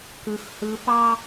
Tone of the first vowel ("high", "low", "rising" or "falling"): high